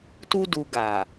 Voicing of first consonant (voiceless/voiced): voiceless